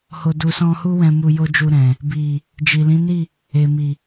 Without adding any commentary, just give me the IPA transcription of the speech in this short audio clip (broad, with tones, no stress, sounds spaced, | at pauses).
h o˨ d u˨ s ɔ̃˧ h u˦ w ɛ̃˧ m u˧ j o˦ d͡ʒ u˧ ɾ ɛ̃˨ | b i˨ | d͡ʒ i˨ l ĩ˨˦ n i˦˨ | e˨ m i˨